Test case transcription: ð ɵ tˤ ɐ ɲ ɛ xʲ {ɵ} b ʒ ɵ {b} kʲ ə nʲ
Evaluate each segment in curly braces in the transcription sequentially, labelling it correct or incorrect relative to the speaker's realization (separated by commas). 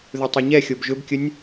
incorrect, correct